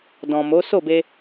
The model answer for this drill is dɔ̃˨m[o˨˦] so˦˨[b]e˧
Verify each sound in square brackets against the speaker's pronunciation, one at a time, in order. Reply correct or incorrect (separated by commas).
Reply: correct, correct